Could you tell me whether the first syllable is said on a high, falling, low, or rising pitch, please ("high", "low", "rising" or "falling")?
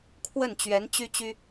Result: falling